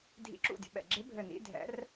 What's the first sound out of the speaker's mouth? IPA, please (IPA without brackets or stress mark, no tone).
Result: dʱ